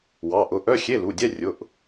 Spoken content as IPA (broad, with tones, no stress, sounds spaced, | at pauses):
w ɑ˩˧˩ ʔ ʊ˩˧˩ ʔ œ˧˥˧ xʲ e˧˥˧ l u˩˧˩ dʲ ɛ˧˥˧ rʲ ʊ˩˧˩ ʔ